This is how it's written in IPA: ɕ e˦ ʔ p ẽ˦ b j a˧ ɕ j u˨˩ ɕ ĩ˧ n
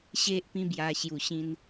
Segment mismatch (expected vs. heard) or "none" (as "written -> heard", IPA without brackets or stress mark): ẽ˦ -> ĩ˦